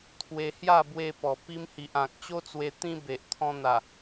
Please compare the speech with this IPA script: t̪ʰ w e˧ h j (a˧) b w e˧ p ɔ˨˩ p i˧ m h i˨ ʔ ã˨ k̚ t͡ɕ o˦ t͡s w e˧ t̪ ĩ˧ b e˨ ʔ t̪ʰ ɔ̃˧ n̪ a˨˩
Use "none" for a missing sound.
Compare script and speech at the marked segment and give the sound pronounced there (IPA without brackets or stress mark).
a˥˧